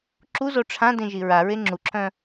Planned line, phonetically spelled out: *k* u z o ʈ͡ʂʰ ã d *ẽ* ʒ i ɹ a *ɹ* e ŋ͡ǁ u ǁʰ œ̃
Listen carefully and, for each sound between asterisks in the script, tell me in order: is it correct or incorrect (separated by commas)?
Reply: incorrect, correct, correct